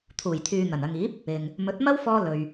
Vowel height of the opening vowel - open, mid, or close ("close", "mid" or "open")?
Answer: close